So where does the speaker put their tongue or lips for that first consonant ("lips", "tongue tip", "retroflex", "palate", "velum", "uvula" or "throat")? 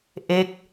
throat